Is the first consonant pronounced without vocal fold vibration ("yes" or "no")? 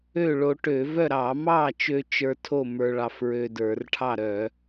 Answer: no